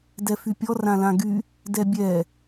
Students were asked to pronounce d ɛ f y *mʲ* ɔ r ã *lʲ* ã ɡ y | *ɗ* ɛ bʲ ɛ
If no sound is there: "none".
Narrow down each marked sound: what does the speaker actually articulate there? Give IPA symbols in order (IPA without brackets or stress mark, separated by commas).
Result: pʲ, l, d